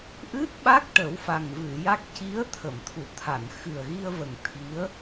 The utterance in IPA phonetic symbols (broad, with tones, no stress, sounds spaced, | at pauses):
ʔ ɨ˦˥ t̚ ɓ a˦˥ k̚ ʈ ə˨˩˦ w f a˨˩ ŋ v ɨ˨˩˨ j a˦˥ k̚ c i˧˥ ə̯ t̪ʰ ə˨˩˨ m t̪ʰ u˨˩˨ t̪ʰ a˨˩˨ n x ɨ˨˩ ə̯ ɣ i˧ ə̯ v ə˨˩ ŋ t̪ʰ i˧˥ ə̯